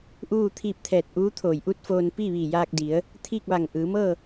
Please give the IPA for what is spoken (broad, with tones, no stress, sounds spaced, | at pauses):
ʔ uː˥˨ t̪ʰ iː˧ p̚ t̪ʰ ɛː˧˩ t̚ ʔ uː˧˥ t̪ʰ oː˧˩ j ʔ u˥˨ t̚ f oː˧ n p iː˥˨ ʋ iː˧˩ j aː˧ k̚ d i˩˧ ə̯ | t̪ʰ iː˥˨ k̚ ʋ a˧˩ ŋ ʔ ɯː˩˧ m ɤː˥˨